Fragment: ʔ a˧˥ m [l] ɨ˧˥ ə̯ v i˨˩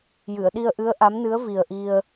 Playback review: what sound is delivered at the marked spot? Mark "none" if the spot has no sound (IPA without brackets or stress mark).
n